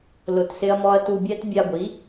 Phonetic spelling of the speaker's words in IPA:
l ʊ˧ t s ɪ˦ ɐ̯ m ɔ˦ ɐ̯ t u˧ bʲ ɛ˦ t bʲ a˧ ɡʷ i˨˦

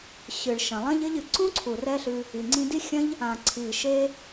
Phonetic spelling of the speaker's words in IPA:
ɕ ɨ˨ ɭ ʃ ɐ̃˨ lˠ ɐ̃˦ ʎ ɘ˦ ʎ ɨ˨ ǀ ũ˦ ǀʰ u˨ r ɛ˧ ɬ ɨ˧ | i˨ ŋ͡ǀ ĩ˧ d i˦ xʲ ɐ̃˦ ʎ | ã˨ ǀʰ i˨ ʃ e˧

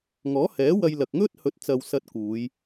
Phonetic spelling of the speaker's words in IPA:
ŋ ɔː˨˥ h ɛː˨˥ w ɐ˧ j l ɐ˨ k̚ ŋ ɵ˥ t̚ h ɵ˨˥ t̚ t͡s ɐ˨ w s ɐ˧ t̚ k uː˨˧ j

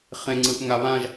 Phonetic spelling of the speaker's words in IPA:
χ ẽ ŋ͡ǀ ɯ ʔ ŋ a β ã ʒ

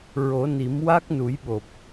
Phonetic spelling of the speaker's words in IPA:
ɹ o˨˩˦ n i˨˩˦ m w a˦˥ k̚ n u˨˩˦ j ɓ o˨˩ p̚

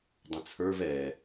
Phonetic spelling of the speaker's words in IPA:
dˤ ə̃ t͡sʰ ə˞ v ɛ

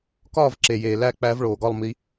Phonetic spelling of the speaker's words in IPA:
k ɒː˥˨ v ǁ e˨˩ j eː˨˩ l æ˥˨ k͡p æ˧˥ v ɭ oː˨˩ ɡ ɒ˥˨ lˠ m i˧˥

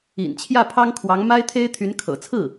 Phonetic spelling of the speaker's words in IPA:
ḭ˨˩ n t͡ɕʰ j ä˥˩ pʰ ɑ˥ ŋ kʰ w ɑ˧˥ ŋ m a˥ ɪ̯ t̪ʰ e˥ ɪ̯ t̪ʰ y˧˥ n kʰ ɤ̰˨˩ t͡sʰ ɹ̩˥˩

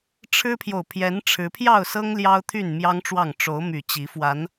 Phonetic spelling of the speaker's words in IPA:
ʈ͡ʂʰ ɻ̩˦ pʰ j o˨ ʊ̯ pʰ j ɛ˨˦ n ʈ͡ʂʰ ɻ̩˨˦ pʰ j ɑ˥˨ ʊ̯ s ɤ˦ ŋ l j ɑ˦ ʊ̯ t̪ʰ y˥˨ n m j ɑ˦ ŋ ʈ͡ʂ w ɑ˥˨ ŋ ʈ͡ʂ o˨˦ ʊ̯ m y˨˩ t͡ɕ i˨˦ f w a˨˦ n

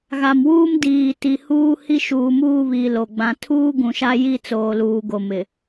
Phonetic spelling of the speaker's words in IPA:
ɣ a˨ m w uː˦ m d iː˨ t i˨ h uː˦ h i˦ ʃ uː˨ m uː˦˨ β iː˨ l o˨ ɡ͡b ã˨ tʰ uː˦ ɡ ũ˨ ʃ a˦ j i˦ t͡s oː˨ l uː˨ ɡ o˨ m ɪ˨

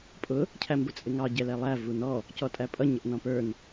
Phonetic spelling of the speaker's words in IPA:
pʼ ʊ | cʰ æ m b ʊ t͡sʼ ɪ ŋ ɑ ɟ ɛ l ɛ lˠ æ v u n ɔ | c ɔ tʼ æ pʼ ʌ ɲ ə ʔ n ɔ̃ p ə˞ n

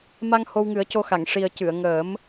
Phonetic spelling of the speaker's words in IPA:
m a˧ ŋ h o˧ w ŋ ɨ˨˩˦ ə̯ c o˧ x a˨˩˨ ŋ ʂ i˨˩ ə̯ c ɨ˨˩˨ ə̯ ŋ əː˨˩˦ m

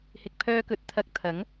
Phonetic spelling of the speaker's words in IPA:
h ɪ˨ k̚ pʰ œː˧ k ɵ˨˥ t̚ t̪ʰ ɐ˨ k̚ t̪ʰ ɐ˨˥ ŋ

